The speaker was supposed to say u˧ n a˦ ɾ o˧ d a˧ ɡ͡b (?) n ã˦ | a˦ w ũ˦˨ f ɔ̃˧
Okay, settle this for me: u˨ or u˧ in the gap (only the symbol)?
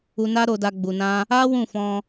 u˧